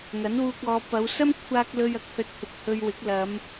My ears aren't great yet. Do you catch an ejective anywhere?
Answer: no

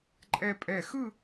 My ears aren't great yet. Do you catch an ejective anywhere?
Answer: yes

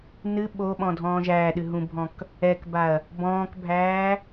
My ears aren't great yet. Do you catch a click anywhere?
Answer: no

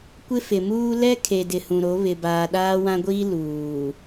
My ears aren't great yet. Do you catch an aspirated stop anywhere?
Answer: yes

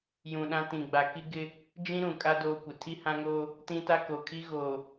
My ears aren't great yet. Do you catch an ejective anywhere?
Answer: yes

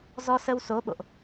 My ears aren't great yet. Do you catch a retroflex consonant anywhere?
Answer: no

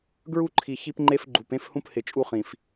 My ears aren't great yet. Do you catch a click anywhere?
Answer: yes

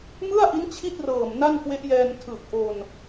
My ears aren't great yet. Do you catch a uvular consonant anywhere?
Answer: no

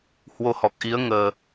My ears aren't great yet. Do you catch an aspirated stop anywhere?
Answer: no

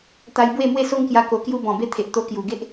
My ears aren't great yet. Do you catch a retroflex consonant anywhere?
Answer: no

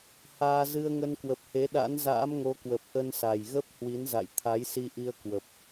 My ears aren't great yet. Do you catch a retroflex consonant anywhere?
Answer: no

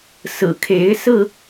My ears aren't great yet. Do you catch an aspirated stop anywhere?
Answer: yes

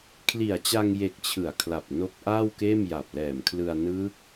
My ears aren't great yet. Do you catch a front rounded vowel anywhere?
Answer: no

